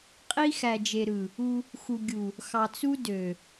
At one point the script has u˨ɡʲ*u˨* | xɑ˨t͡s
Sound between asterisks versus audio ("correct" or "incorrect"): correct